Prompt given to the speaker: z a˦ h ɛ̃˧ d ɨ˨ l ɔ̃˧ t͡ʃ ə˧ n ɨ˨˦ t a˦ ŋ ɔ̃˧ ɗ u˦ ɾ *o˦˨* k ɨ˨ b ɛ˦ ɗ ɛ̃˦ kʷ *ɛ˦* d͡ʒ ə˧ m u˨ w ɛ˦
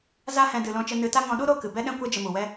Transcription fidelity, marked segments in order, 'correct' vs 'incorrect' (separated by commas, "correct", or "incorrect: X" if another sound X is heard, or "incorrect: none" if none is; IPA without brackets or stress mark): correct, correct